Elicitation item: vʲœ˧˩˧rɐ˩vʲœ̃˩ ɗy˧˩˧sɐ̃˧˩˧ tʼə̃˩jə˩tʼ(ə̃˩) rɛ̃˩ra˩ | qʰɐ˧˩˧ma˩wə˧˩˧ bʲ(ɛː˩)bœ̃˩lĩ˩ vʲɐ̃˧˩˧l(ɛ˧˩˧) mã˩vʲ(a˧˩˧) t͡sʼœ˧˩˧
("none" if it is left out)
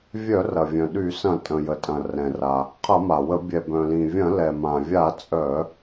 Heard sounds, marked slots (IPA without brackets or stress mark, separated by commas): ɐ̃˩, ɛ˩, ɛ˩, a˧˩˧